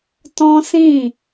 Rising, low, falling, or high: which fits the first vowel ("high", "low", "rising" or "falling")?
high